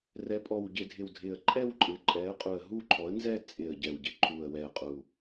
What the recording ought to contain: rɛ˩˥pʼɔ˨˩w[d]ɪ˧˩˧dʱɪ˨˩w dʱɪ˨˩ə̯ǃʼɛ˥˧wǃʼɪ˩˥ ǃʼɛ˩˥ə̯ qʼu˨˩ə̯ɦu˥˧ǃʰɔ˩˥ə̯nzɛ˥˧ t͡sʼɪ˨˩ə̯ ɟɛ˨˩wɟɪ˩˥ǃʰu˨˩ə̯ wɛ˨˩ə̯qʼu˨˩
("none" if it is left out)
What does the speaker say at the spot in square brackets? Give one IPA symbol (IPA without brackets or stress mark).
ɟ